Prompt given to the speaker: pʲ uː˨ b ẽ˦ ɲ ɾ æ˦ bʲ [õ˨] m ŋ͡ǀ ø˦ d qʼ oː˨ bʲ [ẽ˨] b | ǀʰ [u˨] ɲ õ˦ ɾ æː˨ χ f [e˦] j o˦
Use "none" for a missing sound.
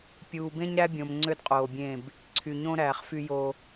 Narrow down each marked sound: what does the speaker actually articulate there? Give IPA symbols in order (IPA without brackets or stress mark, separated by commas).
õ˨, ẽ˦˨, y˨, y˦